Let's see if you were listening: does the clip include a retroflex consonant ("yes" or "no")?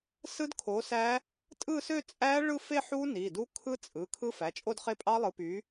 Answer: yes